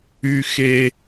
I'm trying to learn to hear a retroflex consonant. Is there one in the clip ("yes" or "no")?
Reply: no